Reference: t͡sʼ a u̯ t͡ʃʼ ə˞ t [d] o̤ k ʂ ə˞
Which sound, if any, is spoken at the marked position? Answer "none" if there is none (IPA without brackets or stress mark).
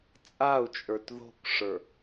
ð